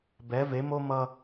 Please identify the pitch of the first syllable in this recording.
rising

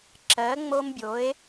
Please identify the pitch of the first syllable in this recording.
rising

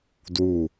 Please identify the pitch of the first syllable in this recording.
low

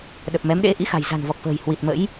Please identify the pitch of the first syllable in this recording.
low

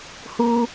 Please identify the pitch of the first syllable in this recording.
high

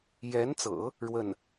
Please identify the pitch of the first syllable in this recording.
rising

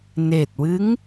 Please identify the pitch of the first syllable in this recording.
low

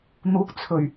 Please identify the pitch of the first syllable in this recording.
rising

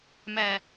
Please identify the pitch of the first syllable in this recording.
low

